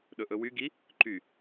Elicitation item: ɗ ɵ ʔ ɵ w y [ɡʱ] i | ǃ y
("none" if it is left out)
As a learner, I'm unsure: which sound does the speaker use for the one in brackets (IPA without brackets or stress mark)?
ɡ